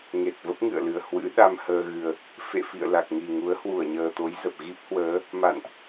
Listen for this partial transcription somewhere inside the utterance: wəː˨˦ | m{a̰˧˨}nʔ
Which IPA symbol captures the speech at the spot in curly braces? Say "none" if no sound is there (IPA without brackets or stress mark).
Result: a̰˧˨